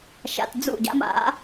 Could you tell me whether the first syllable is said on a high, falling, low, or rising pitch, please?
low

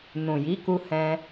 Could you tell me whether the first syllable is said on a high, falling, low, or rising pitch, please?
low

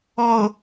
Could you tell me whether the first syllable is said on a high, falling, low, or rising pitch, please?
low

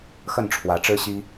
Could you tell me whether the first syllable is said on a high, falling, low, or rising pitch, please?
falling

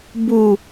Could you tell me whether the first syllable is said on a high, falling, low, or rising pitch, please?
low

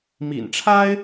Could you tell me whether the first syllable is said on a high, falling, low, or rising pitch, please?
low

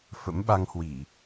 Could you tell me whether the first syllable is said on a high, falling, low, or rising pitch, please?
rising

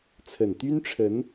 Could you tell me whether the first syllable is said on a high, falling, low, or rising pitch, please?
low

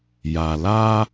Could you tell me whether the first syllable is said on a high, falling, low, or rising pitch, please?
low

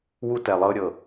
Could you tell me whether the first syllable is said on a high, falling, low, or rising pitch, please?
high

